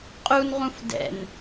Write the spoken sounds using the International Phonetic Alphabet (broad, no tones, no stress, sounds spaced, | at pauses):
qʼ u n ʁ ũ f d ɛ̰ n